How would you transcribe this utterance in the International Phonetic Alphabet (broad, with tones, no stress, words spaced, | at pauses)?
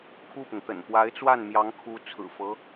kʰu˥˩pʊ˩ŋt̪ə̰˨˩n pwa˧˥ɪ̯t͡swa˥˩nmjɑ˧˥ŋ kʰu˧˥ t͡sʰɹ̩˨˩fɤ˧˥